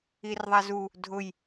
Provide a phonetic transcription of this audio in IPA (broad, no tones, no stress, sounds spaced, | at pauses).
i r ðˤ a z u | dʱ ʊ j